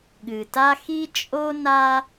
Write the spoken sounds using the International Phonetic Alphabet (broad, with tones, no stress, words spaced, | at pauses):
ɠɨ˨ta˦xi˦ t͡ʃʼo˦na˦